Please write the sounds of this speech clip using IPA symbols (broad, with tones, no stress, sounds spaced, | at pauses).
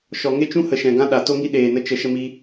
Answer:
ʃ ɔ˨ ŋ e˦ t͡ʃ ũ˦ h ə˨ ʃ ɛ̃˨ ɡ ã˦ ɗ a˨ t o˦ ŋ i˦ ɗ eː˨ n ə˧ t͡ʃ ə˧ ʃ ə˧ m i˧